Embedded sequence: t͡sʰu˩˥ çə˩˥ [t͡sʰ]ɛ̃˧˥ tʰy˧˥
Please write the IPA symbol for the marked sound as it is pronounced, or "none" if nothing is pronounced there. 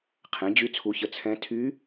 t͡sʰ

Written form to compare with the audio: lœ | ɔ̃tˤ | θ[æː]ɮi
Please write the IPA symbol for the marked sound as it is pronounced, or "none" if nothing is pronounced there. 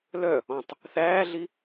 æː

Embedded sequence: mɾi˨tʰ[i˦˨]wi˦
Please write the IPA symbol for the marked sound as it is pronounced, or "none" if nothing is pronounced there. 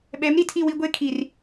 i˦˨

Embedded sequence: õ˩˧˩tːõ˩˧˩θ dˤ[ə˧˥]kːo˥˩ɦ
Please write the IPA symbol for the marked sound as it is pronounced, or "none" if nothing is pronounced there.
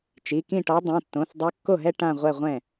œ˧˥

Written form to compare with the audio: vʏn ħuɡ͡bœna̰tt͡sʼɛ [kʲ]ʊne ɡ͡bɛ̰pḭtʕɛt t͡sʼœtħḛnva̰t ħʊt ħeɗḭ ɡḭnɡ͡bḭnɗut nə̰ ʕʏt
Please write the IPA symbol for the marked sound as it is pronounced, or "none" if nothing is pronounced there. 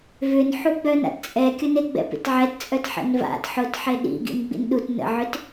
kʲ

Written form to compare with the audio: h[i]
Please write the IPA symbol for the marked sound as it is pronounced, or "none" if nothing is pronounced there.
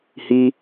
i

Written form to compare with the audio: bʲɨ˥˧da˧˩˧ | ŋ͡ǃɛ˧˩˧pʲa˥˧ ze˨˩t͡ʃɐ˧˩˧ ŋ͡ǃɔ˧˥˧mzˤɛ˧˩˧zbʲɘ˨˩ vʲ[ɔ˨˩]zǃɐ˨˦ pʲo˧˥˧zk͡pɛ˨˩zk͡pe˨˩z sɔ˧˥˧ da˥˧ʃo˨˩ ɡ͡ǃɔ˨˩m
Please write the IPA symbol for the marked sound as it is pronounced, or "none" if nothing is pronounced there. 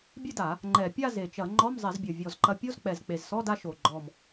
ɔ˨˩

